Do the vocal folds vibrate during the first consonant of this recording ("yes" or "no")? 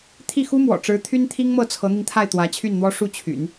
no